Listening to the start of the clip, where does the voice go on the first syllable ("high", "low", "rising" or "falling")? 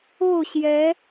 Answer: falling